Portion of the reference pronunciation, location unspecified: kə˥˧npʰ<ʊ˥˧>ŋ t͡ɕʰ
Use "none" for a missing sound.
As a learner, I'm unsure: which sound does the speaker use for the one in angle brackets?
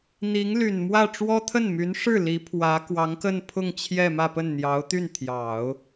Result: ʊ˥˧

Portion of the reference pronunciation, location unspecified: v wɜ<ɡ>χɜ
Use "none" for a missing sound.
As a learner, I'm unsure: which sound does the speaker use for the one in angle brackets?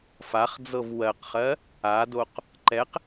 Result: q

